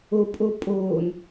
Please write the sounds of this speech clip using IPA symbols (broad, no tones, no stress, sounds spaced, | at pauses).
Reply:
o pʼ o pʼ oː n